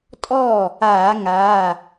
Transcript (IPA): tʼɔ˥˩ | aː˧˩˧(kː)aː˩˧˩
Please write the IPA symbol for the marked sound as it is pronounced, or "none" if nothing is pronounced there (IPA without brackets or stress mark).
ŋ